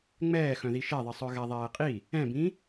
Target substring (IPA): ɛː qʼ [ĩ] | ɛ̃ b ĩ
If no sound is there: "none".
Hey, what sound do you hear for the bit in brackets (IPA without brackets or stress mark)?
i